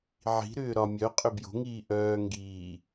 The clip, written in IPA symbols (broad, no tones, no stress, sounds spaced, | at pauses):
ʕ i̤ ɾ ʏː ɾ ɒ mʲ œ qʼ ʏ b j o̤ ŋ iː ʔ œː ŋ ɡ iː